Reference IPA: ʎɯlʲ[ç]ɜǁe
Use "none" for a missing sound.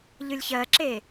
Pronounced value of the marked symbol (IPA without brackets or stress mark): ç